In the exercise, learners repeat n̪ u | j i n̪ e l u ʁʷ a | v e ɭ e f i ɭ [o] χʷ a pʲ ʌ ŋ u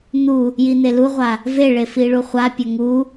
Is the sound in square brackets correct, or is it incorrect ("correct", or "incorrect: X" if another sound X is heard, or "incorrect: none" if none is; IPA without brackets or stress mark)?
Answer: incorrect: u